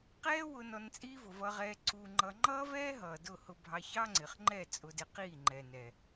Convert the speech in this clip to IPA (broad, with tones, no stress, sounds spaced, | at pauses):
q ɛː˦ w ʊ˧ n ɔ˧ n t͡sʼ iː˦ v ʊ˨ v ʌ˧ ʁ ɛː˧ ǀ u˧ ŋ͡ǃ ʌ˧ ŋ͡ǃ ʌː˦ v ɛː˦ ɦ ʌː˨ d ʊ˦˨ h ʊ˧ bʱ ɑ˧ ç ɑ˦ ŋ͡ǀ ɪ˨ χ ŋ͡ǃ ɛ˦˨ t͡sʼ ʊ˧ d ɪ˧ q iː˦˨ ŋ͡ǃ ɛ˨ n ɛ˨